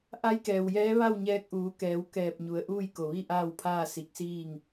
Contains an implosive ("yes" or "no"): no